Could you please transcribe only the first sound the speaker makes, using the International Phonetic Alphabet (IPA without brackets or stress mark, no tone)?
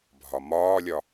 bʱ